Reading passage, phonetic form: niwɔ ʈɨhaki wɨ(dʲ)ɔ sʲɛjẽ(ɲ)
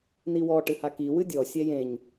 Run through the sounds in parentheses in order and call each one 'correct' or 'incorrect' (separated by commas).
correct, correct